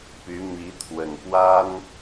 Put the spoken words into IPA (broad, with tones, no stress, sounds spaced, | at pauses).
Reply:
p y˧˥ m i˧˥ t̪ʰ w ə˨˩ n p w a˥ n